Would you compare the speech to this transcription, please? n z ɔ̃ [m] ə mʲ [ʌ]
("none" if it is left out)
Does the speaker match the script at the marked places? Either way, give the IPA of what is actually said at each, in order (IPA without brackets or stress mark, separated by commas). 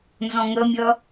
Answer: ŋ, ʌ